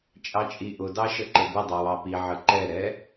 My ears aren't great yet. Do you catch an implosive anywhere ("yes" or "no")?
no